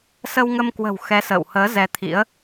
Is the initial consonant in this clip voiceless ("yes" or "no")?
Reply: yes